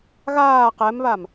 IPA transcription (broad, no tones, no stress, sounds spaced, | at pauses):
ɣ aː q ɛ m β a m